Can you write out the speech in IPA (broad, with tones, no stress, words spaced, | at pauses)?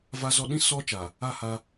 va˦zɔ˦ ɗĩ˦ sɔ˦ t͡ʃa˨ | a˦˨ha˦